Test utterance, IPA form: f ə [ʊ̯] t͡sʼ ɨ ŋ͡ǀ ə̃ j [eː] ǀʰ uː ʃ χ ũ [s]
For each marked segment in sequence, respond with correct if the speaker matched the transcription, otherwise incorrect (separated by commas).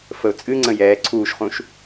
correct, incorrect, incorrect